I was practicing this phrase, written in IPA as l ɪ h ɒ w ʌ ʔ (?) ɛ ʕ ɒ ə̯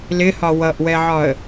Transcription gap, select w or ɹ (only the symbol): w